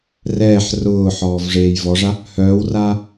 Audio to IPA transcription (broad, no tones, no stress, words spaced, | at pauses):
rɛːħ rʊːħɔːv ʐeːjvɔʐa | hœːwraː